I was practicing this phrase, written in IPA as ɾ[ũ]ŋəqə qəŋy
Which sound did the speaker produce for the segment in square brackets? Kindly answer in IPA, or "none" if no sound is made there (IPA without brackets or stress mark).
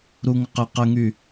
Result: u